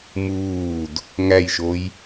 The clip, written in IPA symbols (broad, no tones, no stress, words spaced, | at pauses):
muːd | ŋæjʃoj